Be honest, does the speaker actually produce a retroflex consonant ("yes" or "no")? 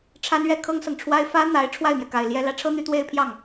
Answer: yes